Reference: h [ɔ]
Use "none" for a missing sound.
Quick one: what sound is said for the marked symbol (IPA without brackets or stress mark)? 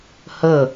ə